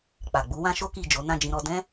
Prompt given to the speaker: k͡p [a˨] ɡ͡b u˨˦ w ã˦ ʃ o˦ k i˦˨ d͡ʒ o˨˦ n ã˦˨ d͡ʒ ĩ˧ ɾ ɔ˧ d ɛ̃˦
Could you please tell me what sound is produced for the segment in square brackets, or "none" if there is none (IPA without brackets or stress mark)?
a˨